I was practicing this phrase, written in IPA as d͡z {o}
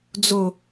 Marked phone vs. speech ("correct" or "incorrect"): correct